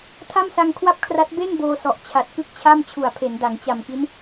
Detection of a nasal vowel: absent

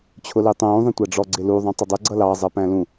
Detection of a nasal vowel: present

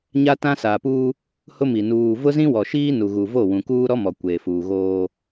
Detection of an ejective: absent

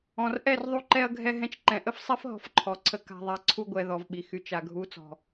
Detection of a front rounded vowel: present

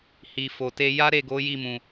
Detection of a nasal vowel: present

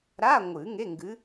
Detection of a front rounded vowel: absent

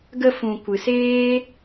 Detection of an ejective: absent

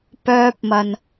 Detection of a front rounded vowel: present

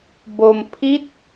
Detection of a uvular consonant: absent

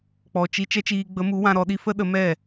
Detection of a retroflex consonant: absent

